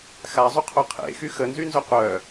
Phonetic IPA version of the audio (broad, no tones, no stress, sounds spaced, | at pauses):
x a zˤ u qʰ o qʰ ḛ x y x ə n z y n z œ qʷ œ